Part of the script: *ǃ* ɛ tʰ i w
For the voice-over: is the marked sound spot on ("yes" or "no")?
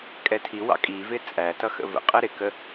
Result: no